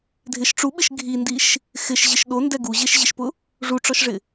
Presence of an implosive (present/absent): present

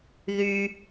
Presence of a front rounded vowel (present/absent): present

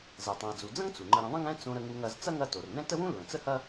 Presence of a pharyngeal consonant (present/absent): absent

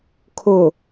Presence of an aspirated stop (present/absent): present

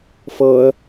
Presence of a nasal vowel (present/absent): absent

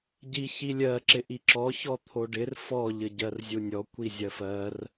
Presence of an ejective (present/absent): absent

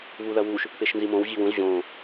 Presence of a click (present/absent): absent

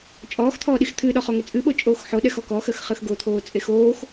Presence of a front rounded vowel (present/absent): absent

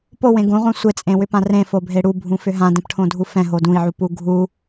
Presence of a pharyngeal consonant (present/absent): present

